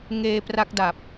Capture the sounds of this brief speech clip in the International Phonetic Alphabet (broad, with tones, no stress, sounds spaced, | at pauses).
ŋ eː˧ p r a˦˥ k̚ d a˨˩ p̚